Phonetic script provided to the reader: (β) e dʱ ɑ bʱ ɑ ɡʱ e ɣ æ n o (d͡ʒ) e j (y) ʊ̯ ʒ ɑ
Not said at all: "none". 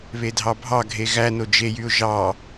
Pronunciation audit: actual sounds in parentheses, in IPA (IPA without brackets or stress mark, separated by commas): β, d͡ʒ, y